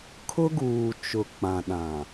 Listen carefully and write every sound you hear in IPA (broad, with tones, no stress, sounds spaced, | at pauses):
kʰ ʊ˦ ɡ uː˨ t͡ʃ ʊ˨ k͡p ã˨ ɗ ã˨